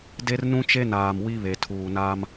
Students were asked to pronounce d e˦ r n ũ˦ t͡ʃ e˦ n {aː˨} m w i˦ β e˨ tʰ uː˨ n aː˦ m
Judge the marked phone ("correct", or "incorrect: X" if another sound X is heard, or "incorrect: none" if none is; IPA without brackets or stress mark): correct